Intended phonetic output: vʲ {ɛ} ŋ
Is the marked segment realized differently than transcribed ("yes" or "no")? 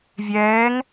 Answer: yes